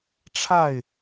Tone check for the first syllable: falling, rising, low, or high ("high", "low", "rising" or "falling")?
falling